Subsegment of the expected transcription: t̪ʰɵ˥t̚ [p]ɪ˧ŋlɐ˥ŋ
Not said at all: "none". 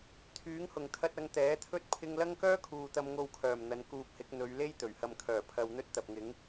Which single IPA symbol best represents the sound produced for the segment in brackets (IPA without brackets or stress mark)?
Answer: pʰ